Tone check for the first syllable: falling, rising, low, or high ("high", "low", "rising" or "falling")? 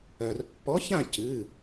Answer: low